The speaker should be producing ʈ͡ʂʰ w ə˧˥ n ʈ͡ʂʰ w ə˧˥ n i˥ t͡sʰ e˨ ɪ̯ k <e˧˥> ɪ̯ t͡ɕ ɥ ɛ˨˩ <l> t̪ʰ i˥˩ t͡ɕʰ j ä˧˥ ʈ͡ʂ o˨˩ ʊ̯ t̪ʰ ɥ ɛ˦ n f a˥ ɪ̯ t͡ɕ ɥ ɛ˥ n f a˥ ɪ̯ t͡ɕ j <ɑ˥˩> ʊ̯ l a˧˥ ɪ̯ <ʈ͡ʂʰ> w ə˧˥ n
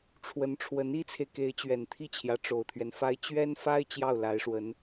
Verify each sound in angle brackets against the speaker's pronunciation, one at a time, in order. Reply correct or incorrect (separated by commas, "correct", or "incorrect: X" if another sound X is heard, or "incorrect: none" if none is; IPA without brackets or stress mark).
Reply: correct, incorrect: n, correct, incorrect: ʂ